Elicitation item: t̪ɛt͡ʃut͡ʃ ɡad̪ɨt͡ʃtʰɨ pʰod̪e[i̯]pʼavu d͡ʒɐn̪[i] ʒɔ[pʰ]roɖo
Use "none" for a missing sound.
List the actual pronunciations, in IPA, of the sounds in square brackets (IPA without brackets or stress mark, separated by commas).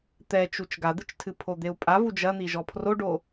u̯, i, pʰ